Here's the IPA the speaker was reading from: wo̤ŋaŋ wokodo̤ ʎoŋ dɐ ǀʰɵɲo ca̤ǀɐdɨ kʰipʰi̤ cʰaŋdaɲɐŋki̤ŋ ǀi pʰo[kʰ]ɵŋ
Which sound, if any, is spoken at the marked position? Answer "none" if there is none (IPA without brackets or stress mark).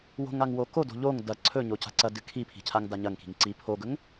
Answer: ɡ